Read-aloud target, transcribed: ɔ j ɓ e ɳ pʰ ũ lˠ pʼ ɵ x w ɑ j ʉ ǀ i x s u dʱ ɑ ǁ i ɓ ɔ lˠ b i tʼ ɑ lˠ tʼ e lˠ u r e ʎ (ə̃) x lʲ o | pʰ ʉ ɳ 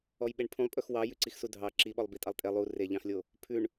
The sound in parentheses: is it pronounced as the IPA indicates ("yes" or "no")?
no